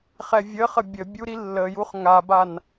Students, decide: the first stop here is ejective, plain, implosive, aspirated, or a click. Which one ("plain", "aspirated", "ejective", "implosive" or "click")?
plain